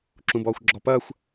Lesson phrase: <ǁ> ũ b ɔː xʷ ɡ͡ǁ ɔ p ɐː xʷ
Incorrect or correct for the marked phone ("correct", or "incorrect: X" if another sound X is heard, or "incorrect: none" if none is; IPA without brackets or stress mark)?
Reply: correct